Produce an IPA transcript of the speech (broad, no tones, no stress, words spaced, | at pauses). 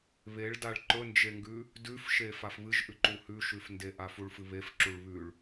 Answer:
βeɭdaɭ ǃɵnd͡ʒeŋɡʉ | dʉfʃe fafβɨʒʔʉǃu hʉʃʉfndeʔa fuɭfɨβefǁuɭ βʉɭ